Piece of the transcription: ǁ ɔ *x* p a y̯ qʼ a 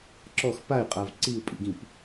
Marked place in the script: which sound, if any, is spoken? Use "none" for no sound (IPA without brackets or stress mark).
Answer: x